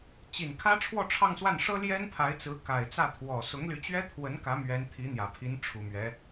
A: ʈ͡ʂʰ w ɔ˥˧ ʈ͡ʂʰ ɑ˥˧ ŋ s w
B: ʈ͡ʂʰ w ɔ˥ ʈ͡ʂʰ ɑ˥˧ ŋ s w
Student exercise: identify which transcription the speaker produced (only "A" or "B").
A